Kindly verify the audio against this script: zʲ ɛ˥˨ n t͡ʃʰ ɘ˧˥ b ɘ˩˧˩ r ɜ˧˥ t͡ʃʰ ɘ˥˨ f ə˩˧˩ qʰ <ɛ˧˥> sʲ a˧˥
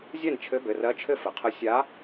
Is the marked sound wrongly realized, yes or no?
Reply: yes